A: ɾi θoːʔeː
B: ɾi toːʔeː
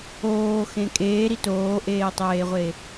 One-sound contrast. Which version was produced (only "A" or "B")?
B